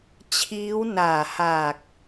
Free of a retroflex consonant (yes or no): yes